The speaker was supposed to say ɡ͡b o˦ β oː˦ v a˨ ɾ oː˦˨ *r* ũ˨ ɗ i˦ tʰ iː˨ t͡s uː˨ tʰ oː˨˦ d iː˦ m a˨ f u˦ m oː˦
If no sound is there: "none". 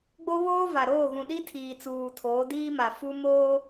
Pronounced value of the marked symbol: ɣ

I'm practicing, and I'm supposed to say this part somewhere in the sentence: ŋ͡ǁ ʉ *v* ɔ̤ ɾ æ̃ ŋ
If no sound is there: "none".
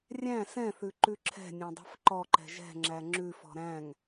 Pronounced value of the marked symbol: f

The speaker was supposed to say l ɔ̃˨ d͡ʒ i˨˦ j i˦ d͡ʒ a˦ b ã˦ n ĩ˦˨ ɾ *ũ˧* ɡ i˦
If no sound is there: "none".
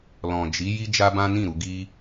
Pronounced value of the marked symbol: u˧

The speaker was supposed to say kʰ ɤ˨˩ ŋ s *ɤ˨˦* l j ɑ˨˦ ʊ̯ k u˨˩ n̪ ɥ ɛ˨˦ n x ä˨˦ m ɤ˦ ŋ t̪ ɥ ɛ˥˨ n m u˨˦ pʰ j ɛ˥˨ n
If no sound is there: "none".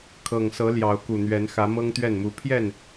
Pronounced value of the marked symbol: ɤ˨˦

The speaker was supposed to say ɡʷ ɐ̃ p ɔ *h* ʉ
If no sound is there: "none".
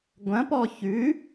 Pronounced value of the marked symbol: ç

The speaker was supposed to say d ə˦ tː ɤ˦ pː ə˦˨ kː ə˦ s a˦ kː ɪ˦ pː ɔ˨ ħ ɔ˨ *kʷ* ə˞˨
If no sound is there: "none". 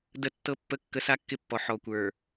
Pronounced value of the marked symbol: kʷ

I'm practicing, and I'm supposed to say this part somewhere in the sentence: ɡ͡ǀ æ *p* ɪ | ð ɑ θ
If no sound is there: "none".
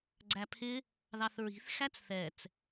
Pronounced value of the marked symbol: pʰ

